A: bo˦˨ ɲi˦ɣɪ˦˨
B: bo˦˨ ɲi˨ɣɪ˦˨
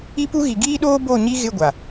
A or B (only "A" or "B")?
A